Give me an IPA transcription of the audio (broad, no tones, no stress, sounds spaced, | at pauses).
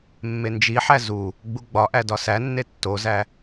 mː e n d͡ʒ i ħ æ z u | ɡ͡b u ɡ͡b ɒ ʔ æ d ɒ s æ nː e tː o z æ